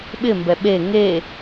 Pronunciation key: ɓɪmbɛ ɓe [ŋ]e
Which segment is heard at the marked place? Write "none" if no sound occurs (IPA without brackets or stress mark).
ŋ